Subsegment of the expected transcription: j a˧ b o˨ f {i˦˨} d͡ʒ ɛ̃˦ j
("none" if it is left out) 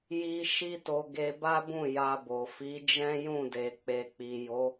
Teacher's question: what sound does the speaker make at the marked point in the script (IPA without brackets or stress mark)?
i˨˦